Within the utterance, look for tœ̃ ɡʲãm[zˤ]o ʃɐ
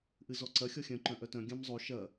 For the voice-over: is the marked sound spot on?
yes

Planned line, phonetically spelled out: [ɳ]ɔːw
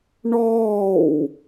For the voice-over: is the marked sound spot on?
yes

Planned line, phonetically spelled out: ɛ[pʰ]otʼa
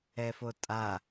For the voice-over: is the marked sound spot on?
no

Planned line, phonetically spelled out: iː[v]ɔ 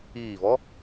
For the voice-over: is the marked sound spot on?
yes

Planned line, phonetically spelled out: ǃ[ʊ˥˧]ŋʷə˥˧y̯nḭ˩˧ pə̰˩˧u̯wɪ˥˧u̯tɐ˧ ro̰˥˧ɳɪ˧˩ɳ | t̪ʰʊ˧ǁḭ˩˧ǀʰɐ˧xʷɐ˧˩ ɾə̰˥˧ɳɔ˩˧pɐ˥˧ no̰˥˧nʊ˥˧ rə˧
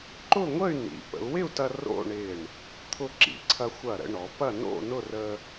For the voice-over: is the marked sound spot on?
yes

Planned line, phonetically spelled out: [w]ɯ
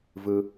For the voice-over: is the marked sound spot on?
no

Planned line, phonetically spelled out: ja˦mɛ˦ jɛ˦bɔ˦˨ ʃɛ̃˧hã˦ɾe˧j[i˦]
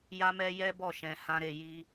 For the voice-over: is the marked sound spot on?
yes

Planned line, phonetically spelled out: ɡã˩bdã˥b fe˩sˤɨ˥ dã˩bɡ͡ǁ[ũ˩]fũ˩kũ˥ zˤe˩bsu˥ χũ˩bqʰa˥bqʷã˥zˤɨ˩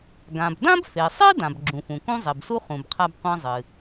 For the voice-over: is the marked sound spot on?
yes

